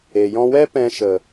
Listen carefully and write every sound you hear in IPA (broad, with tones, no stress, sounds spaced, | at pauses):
e˨ j ɔ̃˧ w ɛ˦ p ɛ̃˧ ʃ ə˨